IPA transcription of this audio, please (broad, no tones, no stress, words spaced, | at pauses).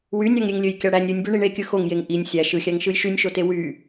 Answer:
wynʲɑŋɾʲeŋlʲøj kʲɑɽænʲ ɾʲɯnʲbø ɳiɳekʲɯ xoŋjeŋ ʔinʲ sʲæ ʃɯxʲæŋʃɯj ʃynʲʃote wy